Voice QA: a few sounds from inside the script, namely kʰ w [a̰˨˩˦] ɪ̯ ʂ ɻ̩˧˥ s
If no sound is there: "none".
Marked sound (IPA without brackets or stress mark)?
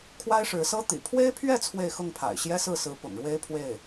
a˥